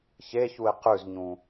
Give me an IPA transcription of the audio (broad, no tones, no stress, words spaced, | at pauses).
çeçuɪ̯ qʉzɲũ